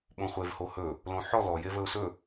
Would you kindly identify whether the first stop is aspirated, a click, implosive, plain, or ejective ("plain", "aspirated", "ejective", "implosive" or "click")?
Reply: implosive